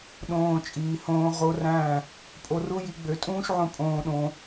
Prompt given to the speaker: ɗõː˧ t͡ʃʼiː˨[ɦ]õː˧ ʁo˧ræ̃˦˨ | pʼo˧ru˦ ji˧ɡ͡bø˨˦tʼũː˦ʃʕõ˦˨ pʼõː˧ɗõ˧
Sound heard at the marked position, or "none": h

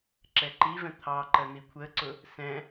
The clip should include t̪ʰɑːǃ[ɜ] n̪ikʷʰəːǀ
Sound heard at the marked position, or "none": ɜ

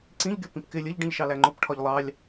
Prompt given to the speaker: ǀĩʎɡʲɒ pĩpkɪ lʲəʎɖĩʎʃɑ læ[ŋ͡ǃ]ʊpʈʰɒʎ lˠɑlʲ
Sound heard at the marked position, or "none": ŋ͡ǃ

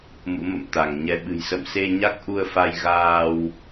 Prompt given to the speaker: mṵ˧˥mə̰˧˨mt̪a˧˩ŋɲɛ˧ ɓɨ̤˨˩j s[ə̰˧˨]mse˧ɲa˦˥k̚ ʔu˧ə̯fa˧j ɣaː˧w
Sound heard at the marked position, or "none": ə̰˧˨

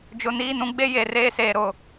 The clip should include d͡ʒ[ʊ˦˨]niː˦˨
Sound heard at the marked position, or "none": ʊ˨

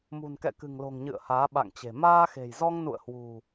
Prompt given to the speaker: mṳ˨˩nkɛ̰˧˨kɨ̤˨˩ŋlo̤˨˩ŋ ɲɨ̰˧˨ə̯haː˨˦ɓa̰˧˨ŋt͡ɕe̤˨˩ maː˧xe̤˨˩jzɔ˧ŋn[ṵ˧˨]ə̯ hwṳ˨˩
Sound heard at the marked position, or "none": ṵ˧˨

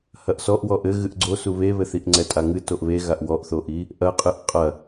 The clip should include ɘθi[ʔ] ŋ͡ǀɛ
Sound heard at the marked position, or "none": ʔ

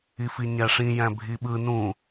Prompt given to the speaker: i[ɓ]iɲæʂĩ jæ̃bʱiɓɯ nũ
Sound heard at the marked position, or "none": f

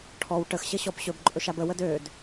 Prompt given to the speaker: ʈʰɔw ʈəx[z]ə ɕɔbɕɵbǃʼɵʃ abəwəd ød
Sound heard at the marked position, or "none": ɕ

